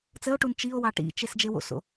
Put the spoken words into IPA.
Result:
t͡s ə o̯ ʈ u n t͡ʃ i o̯ w ɑ ʈ ḭ t͡ʃ e s d͡ʒ e w o̰ s o̰

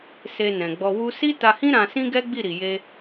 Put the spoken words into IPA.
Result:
s e˧ n ɛ̃˨ ɡ͡b ɔ˧ w u˦ s i˦ t a˧ h ĩ˦ ɾ ã˧ s ĩ˦ ɡ ɛ˦ ɡ͡b i˦˨ ɾ i˨ j e˧

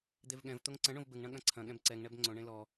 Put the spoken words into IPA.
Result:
d̪ e v ɠ ɛ̃ v t̪ o ŋ ǀ ɐ̃ ɳ õ v b ɘ ŋ ɳ ɐ̃ ɠ ɐ̃ ǀʰ ɐ̃ ɠ ɛ̃ b ǀ ɛ ŋ ɳ ɛ b ŋ͡ǀ õ ɳ ẽ l ɔ

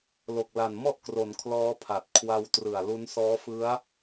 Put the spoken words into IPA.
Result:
l o˨˩ k̚ l a˨˩ n m ɔ˥˩ ʔ k r o˩˦ n kʰ l ɔː˦˥ pʰ a˨˩ t̚ kʰ w a˧ w t r ɯ˨˩ a̯ l u˦˥ n s ɔː˦˥ f ɯ˦˥ a̯

